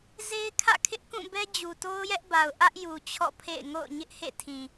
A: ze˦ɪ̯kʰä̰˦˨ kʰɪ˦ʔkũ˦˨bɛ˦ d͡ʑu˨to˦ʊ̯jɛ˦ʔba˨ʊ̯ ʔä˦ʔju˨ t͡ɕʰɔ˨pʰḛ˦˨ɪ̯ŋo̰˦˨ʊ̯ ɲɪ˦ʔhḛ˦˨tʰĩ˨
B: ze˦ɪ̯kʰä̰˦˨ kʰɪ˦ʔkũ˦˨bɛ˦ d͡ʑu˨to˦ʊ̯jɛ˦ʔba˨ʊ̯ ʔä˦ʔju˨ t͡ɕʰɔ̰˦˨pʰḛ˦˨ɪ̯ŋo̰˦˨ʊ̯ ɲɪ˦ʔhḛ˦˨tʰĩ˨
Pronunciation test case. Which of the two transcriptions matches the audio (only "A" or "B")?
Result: B